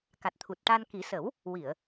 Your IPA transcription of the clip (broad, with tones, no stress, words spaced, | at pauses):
ka˨˩t̚t̪ʰu˨˩t̚ʈa˧n ki˨˩˦sə˨˩˦w | wi˨˩˨ə̯